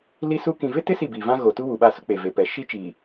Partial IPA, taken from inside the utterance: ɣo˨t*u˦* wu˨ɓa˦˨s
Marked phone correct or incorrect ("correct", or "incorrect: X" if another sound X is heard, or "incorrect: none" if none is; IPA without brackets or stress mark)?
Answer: correct